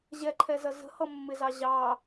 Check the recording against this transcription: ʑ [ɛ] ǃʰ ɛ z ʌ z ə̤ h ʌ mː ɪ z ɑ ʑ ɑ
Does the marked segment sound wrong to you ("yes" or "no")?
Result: no